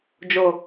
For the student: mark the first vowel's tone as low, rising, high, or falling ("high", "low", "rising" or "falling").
low